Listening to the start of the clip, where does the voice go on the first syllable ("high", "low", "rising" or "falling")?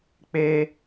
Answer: high